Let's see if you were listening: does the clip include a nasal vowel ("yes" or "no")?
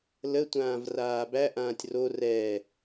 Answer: yes